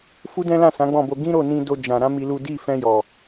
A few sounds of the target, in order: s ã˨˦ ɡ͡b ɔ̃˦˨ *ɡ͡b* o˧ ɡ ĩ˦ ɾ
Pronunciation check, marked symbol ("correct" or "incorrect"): incorrect